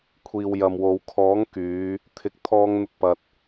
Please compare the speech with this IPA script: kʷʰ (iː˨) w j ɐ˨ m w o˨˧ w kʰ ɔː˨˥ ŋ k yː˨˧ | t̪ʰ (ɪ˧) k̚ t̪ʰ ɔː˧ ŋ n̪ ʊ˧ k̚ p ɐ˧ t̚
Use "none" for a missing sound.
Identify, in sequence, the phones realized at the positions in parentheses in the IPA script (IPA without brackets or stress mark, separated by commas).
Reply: iː˨, ɪ˨˥